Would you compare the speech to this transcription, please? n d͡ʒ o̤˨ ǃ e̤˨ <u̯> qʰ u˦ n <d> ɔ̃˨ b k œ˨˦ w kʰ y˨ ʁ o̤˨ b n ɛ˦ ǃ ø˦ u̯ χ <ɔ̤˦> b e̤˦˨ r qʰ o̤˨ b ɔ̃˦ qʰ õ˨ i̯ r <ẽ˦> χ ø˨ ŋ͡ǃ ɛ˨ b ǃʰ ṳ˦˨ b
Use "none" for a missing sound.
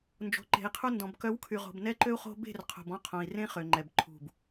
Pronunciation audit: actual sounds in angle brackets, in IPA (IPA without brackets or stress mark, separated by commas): i̯, d, o̤˦, ẽ˦